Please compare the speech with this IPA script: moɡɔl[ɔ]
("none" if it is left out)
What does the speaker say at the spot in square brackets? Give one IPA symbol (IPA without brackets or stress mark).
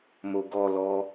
ɔ